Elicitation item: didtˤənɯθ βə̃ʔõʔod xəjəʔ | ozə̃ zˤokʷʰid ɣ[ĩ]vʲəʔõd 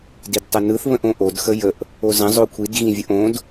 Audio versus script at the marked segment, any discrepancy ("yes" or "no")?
no